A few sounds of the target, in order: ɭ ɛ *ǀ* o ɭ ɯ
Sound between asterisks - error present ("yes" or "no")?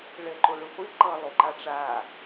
yes